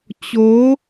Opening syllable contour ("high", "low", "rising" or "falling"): rising